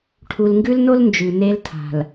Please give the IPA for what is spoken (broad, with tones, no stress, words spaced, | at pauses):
ʈʰu˨lŋɡʉ˦lno˦l nd͡ʒʉ˨ne˦l tʰa̤˨l